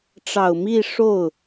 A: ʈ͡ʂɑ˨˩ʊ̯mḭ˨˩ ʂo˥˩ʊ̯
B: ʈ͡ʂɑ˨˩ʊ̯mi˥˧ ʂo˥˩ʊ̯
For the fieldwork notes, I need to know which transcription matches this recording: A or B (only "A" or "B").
B